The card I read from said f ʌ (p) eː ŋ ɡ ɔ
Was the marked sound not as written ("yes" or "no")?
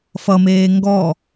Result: yes